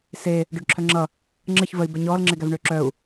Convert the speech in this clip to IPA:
s e | ɖ œ ɖ ǁʰ œ ŋ͡ǁ ʌ | ŋ͡ǁ ə ç v ə i̯ b ɛ ɲ ɔː l ŋ͡ǁ e ɡ æ v ɳ ʏː ǁ œ u̯

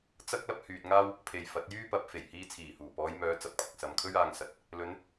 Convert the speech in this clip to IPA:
t͡s ɐ˥ k̚ l ɐ˥ p̚ h yː˨ t̚ ŋ aː˥ w | pʰ e˨ j f ɐ˨˥ t̚ j yː˥ p ɐ˨˥ p̚ f e˨˩ j h iː˧ t͡sʰ iː˨˩ h uː˨˩ p ɔː˨˧ j m œː˨˧ t͡s ɐ˨ p̚ kʷʰ ɐ˨ k̚ s ɐ˨ m kʰ ɵ˥ ɥ aː˧ ŋ s ɐ˨˥ t̚ | l ɵ˨˧ n

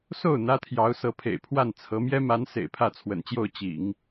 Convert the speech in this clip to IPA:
s o˥˩ ʊ̯ n̪ ä˥ t̪ʰ j ɑ˧˥ ʊ̯ s ɤ˧˥ pʰ ḛ˨˩ ɪ̯ pʰ w a˥˩ n t͡sʰ ɤ˧˥ m j ɛ˥ m a˧˥ n s ḛ˨˩ ɪ̯ pʰ ä˥˩ t͡sʰ w ə̰˨˩ n t͡ɕ j o˥˩ ʊ̯ t͡ɕ ḭ˨˩˦ ŋ

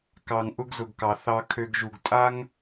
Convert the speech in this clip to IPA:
k ɑ˨ ŋ ʔ ʊ˦ ɡ z ʊ˨ ɡ k ɑ˨ θ ɑ˧ kʰ ø˧ ɡ ʒ u˨ ɡ tʼ a˦ ŋ

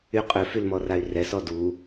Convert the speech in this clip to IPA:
y qʼ ø f y l m ɔ r a y̯ r ɛ s ɔ d u

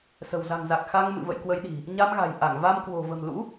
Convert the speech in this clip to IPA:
s ə̤˨˩ w z a̤˨˩ ŋ z a˨˩ k̚ x a˧ ŋ m ɨ̰˧˨ v ə̰˧˨ j k w ə˨˦ j ɗ i̤˨˩ | ɲ a˧ m ɣ a̤˨˩ j ʔ a˧˩ ŋ v a˧ m k w o̤˨˩ v ə̤˨˩ m l ṵ˧˥

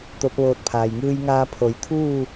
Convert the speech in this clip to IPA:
t̪ o˧˥ p̚ ʋ oː˧ t̚ pʰ aː˩ j ŋ ɯː˧ j ŋ aː˧ pʰ o˩˧ j t̪ʰ uː˥˨

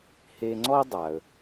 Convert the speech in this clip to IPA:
h e˧ ŋ͡ǀ ɔ˥ dˤ a˩ ə̯

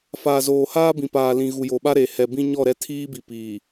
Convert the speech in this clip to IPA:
f aː˨ z oː˨ h aː˦ b ĩ˨ p aː˨ l ĩ˨ ɣ u˨ j o˨ ɓ a˦ ɾ e˨ h ɛ˨ b ĩ˦ ɲ ɔ˦˨ ɾ ɛ˦ tʰ iː˦ b i˨ p iː˨

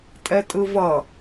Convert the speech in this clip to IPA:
tʼ ɛ tʼ ɯ v ʌ

